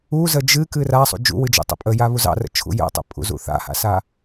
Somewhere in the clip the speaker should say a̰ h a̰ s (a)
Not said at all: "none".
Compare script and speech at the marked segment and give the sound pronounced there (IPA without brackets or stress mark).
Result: a